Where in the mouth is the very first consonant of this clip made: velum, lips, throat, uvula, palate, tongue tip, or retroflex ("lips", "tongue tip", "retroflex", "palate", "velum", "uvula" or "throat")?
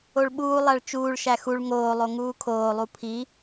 retroflex